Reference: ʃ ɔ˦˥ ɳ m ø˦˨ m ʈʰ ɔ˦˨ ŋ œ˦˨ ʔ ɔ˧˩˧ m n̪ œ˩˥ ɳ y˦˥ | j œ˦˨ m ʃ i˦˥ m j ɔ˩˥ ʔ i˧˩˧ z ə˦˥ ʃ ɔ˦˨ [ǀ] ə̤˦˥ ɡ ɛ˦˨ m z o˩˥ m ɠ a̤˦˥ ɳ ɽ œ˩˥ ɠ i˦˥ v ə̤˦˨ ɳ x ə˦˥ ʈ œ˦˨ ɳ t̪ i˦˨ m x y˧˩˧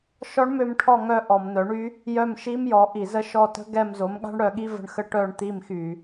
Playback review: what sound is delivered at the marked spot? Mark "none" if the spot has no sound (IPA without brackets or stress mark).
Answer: t